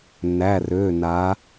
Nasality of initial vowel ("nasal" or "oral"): oral